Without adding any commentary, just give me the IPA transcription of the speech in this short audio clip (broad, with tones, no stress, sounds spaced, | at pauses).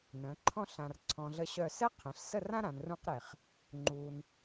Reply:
n ə̃˩˧ ǃʰ ɔ̃˥˧ ɬ ã˧ r ǀʰ ɔ̃˧ ɮ ə˥˧ ɕ œ˥˧ s ɛ˥ qʰ ẽ˩˧ ɬ s ə˥˧ r ã˥ ɾ ã˩˧ n r ũ˥ q ɾ e˧˩ χ | ŋ͡ǃ u˧ n